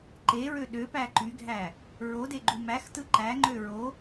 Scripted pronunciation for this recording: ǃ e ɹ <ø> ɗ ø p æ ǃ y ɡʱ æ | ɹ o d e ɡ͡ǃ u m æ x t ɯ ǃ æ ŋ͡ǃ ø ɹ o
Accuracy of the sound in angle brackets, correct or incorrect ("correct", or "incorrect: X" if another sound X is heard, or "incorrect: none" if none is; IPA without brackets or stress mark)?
correct